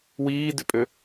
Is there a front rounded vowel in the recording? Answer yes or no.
yes